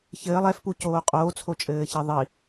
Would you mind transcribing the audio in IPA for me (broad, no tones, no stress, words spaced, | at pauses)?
çɘːlˠ ɛfpucoː qʼoːt͡sʰot͡ʃʼɘːçe ðˤi